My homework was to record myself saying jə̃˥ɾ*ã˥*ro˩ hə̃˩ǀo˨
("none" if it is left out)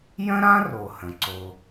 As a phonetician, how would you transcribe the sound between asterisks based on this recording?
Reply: ã˥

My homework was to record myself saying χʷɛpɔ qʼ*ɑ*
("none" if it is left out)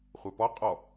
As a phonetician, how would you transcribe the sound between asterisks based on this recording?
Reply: ɔ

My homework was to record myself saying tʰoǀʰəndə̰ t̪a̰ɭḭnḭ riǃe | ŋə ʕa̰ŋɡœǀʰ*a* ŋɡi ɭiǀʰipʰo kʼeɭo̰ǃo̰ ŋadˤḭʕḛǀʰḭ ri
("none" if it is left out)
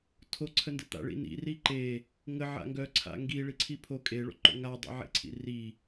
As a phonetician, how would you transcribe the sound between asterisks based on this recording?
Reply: a̰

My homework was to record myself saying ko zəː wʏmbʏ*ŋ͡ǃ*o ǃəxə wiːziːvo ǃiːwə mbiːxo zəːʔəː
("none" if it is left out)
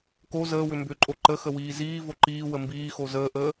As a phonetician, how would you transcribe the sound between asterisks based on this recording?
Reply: ǃʼ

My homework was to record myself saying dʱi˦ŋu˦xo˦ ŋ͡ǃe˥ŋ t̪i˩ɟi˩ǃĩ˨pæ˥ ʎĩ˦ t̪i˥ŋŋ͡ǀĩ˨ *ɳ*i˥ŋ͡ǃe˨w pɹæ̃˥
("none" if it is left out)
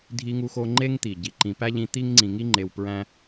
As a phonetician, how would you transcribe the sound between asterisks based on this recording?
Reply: ŋ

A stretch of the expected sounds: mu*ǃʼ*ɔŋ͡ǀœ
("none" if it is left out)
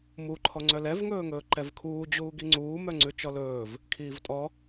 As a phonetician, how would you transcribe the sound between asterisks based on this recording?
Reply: ǃʰ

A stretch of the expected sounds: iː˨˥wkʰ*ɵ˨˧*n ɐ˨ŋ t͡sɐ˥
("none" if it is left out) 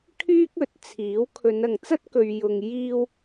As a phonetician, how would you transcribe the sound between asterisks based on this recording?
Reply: ɵ˨˧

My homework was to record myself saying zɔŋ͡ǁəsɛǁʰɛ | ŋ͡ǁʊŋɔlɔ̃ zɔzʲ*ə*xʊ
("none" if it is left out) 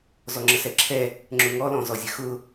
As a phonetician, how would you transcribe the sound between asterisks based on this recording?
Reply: ə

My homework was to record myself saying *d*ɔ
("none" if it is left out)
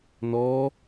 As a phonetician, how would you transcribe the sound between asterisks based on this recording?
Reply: n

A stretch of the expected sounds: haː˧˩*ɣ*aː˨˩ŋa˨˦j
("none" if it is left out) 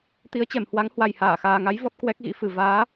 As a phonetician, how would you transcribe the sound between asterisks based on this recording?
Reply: x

